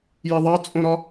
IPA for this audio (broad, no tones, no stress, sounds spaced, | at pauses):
j i ðˤ ɑ t͡sʼ õ ɾ ɒ